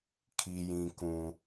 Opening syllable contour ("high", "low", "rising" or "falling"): high